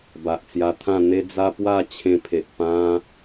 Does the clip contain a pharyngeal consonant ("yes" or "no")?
no